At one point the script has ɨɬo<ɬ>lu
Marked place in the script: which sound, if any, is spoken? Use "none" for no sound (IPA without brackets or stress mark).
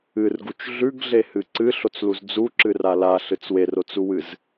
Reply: t͡s